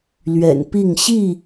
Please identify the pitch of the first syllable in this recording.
low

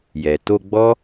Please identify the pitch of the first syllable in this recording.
low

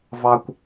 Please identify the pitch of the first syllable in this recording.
low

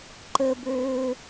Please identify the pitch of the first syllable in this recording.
high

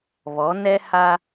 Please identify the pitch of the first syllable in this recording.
rising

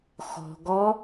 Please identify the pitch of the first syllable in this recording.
low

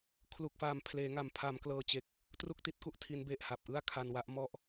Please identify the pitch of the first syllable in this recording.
low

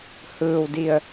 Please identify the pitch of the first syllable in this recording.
low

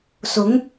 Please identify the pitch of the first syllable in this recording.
rising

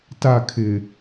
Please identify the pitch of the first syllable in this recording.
falling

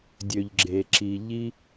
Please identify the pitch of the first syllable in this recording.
low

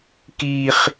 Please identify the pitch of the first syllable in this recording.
high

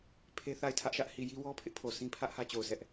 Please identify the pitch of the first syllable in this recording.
high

